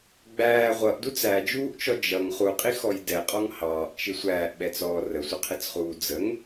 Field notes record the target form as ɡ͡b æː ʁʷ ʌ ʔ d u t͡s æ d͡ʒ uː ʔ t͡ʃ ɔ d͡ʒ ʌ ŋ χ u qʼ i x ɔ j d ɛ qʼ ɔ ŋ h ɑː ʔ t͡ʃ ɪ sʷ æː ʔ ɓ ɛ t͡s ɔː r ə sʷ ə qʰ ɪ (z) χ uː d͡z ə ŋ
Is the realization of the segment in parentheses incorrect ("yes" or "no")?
yes